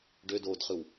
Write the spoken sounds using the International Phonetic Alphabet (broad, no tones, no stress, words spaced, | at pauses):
ɖødoːdχɯw